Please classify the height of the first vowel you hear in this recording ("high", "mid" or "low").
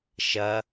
low